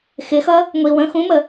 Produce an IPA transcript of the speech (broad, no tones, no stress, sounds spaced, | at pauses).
x ɪ x ʌ | ŋʷ i w ə̃ x ũ m ə